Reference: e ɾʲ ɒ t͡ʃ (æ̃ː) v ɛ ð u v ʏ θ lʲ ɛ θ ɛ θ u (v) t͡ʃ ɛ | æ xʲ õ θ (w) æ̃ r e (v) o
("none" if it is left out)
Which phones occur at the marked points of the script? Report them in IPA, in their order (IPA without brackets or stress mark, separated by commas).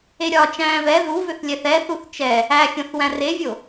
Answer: æ̃ː, θ, w, vʲ